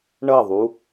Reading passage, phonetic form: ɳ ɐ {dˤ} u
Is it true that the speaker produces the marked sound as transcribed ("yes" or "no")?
no